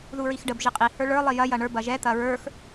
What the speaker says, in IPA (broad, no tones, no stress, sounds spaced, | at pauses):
ð u ɹ i x ɖ ə b ʒ i qʼ i h ə˞ ɭ ə˞ lˠ i j ɐ j ɐ ɳ ə˞ b ɐ ʒ ɛ t̪ ɐ ɹ ə˞ x